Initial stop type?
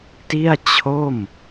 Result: plain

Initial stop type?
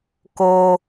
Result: plain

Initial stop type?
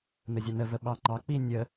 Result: implosive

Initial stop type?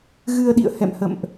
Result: implosive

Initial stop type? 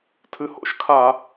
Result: aspirated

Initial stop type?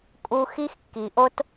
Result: ejective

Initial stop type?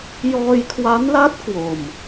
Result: aspirated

